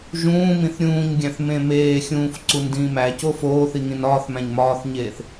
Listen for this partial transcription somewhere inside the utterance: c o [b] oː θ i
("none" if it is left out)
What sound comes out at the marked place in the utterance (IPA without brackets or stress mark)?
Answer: f